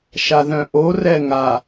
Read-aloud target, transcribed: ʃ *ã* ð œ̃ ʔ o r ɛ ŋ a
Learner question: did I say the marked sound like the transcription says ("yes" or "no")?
no